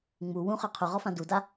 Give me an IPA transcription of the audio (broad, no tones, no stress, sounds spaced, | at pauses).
ŋ͡m u w ũ χ ə˞ qʰ u ʁ ɔ f ã d u d a